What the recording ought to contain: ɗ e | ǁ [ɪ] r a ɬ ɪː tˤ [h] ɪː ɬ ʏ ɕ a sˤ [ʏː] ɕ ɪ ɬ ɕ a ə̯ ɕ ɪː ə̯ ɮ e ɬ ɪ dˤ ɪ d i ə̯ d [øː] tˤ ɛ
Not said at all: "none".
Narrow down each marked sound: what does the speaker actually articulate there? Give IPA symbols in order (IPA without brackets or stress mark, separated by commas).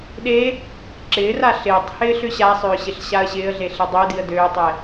ɪː, h, ʏː, øː